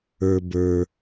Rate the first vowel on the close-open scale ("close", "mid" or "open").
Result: mid